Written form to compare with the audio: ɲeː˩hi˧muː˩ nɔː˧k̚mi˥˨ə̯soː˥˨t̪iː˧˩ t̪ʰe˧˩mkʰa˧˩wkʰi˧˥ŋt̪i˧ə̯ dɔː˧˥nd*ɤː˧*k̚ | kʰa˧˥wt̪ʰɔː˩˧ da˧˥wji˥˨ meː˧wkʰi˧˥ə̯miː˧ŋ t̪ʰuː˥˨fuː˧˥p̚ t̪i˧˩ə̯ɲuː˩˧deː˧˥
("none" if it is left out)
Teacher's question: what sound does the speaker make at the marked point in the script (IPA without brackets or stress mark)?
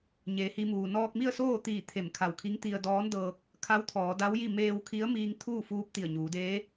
ɤː˧